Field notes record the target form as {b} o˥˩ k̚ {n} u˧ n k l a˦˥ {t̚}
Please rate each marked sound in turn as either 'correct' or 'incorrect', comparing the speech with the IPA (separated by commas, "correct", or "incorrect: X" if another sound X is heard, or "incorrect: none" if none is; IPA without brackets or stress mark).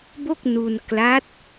correct, correct, correct